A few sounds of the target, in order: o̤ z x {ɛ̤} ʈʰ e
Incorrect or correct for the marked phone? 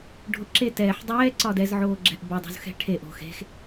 correct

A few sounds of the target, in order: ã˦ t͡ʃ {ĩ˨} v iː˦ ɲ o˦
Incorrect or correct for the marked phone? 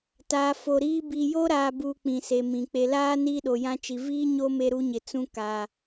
incorrect: i˨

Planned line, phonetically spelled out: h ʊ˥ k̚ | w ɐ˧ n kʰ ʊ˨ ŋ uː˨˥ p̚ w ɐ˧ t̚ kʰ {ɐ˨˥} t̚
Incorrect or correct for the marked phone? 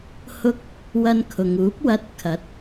correct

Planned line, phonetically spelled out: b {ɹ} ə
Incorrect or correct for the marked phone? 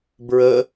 correct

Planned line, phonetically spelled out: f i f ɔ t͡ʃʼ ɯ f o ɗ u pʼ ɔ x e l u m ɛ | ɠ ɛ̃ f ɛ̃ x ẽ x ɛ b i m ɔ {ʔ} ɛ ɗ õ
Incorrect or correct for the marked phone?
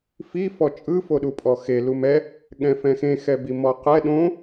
incorrect: q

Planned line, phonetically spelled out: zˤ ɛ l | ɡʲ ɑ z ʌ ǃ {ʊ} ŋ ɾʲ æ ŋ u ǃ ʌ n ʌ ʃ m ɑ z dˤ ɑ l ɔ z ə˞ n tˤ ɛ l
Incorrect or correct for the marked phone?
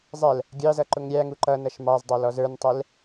correct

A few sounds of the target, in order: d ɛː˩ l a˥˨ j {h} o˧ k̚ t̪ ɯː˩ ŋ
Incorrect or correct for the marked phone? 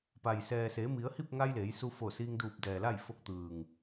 incorrect: f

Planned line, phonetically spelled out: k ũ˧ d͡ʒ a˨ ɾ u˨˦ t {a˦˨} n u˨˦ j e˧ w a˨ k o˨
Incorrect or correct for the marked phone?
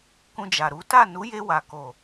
correct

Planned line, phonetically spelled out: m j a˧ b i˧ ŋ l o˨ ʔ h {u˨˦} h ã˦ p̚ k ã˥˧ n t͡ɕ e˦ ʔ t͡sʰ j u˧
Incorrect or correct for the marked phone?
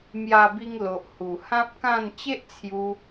incorrect: u˨˩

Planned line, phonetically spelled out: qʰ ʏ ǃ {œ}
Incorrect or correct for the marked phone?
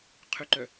correct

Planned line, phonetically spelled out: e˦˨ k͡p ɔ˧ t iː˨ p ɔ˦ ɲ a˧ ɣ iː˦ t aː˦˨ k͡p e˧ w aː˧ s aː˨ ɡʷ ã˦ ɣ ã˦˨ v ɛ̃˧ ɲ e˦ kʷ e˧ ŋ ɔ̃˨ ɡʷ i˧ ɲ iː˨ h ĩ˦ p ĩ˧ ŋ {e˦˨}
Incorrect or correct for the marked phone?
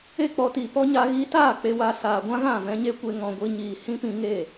correct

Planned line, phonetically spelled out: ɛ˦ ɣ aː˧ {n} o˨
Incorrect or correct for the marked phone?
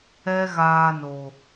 correct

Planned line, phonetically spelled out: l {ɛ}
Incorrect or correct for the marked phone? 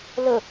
incorrect: ə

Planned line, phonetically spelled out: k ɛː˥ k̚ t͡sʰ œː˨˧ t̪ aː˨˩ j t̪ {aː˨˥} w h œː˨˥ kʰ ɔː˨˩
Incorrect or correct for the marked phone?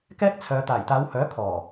incorrect: aː˨˧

